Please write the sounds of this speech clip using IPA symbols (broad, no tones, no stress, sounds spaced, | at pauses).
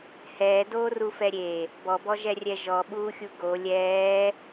h ɛː d oː r u f ɛ ɾʲ e | b ɔ b ɔ ʒ ɛ rʲ ɛ ʒ ɔ ɓ uː xʲ u ɡ o lʲ ɛː